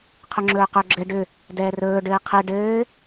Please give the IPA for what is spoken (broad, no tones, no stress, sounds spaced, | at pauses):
qʰ ɵ ŋ͡ǁ ɵː q ɵ ɡ͡ǁ ɘ ɖ ʏ | d ɛː r ɵː ɖ ɘː qʰ ɘ ɖ ɘː